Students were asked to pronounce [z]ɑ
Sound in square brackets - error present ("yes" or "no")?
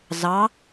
no